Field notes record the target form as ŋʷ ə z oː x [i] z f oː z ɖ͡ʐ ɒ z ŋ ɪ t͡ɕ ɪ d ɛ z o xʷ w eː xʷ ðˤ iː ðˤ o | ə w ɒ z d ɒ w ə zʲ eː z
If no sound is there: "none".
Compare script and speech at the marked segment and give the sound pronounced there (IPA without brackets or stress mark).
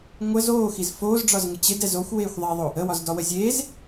i